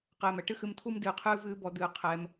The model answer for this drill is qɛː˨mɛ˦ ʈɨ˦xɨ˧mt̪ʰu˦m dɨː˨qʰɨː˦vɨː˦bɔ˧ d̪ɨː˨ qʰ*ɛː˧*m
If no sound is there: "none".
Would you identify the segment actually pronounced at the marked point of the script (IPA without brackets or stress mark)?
ɛː˧